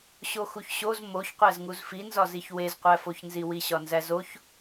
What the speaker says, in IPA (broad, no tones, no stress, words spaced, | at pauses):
ɕoxuçɕoz moçqʷæzŋuz finzɒziç wezqʷæfoçnzi wiɕɒnzæzoç